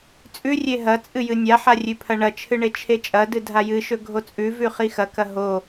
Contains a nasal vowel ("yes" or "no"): no